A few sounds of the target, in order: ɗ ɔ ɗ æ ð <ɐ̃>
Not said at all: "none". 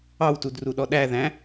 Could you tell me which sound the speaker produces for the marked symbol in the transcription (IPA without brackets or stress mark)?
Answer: æ̃